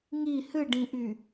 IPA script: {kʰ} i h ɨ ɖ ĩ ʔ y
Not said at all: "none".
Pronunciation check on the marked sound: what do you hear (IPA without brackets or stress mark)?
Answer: ŋ